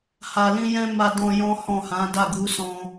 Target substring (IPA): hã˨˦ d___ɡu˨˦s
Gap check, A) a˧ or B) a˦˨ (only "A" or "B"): B